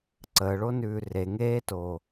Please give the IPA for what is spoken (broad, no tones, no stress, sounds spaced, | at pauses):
ǀ əː ɭ o n ʉː r e ŋ eː t oː